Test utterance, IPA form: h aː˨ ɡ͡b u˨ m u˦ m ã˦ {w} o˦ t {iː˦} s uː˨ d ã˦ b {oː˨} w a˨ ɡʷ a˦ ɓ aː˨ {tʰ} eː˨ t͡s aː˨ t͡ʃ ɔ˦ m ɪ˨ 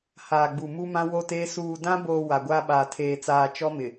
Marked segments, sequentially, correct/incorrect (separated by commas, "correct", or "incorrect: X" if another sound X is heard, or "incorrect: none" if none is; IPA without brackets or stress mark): correct, incorrect: eː˦, correct, correct